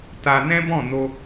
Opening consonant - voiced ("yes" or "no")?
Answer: no